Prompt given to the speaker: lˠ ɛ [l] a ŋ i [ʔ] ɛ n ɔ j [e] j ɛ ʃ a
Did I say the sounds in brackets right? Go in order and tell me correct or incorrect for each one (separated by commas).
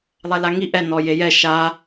correct, correct, correct